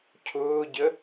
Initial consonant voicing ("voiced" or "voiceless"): voiceless